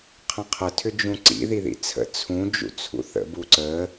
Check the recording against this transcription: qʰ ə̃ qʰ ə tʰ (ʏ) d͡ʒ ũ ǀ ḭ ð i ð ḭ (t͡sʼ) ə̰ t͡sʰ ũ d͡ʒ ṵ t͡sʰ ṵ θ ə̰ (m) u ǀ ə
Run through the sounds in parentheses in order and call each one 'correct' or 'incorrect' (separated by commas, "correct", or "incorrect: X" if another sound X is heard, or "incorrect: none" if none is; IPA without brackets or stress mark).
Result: correct, incorrect: t͡sʰ, incorrect: b